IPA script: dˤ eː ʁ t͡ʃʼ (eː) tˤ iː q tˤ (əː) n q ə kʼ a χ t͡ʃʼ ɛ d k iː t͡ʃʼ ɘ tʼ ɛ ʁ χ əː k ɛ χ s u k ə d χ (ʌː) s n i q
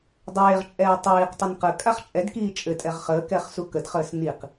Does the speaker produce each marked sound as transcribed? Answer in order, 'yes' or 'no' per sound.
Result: no, no, no

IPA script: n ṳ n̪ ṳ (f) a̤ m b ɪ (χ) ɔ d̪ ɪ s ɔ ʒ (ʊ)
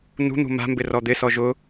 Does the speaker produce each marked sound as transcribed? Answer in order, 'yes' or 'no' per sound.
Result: no, no, yes

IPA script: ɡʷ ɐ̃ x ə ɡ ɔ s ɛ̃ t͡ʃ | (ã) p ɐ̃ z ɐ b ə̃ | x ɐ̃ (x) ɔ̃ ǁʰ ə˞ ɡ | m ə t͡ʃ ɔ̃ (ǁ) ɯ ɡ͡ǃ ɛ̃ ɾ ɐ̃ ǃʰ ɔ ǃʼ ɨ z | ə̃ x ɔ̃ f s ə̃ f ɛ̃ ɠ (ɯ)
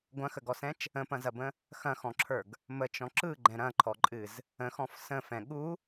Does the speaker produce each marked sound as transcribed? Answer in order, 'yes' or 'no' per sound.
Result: no, yes, yes, no

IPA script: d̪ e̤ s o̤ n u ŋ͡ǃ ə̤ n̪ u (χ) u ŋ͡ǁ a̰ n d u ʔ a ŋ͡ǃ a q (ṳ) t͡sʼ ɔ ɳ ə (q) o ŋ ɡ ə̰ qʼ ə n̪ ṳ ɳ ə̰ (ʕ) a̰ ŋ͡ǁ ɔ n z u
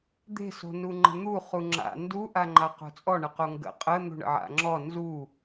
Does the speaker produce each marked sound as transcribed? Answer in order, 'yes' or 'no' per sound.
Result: yes, no, yes, yes

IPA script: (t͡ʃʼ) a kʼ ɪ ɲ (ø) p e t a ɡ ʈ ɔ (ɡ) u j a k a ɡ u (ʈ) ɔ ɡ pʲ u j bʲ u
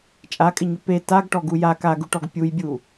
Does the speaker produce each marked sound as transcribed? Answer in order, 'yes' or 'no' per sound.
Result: yes, yes, yes, yes

